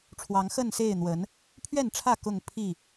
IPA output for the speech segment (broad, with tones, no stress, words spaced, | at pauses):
ʈ͡ʂʰwɑ˨˦ŋxə˥˨nse˥˨ɪ̯ n̪wə˨˦n | pʰɥɛ˥˨nʈ͡ʂʰä˥˨ kʊ˥˨ŋ pʰi˥˨